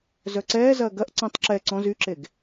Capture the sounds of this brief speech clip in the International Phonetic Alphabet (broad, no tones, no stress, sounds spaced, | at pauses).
z œ ǀ ɛː z ɐː ɡ ɐ ʔ ǀ ɐ̃ tˤ ǁ ɛ ǀ ɔ̃ z y ǁ e ɡ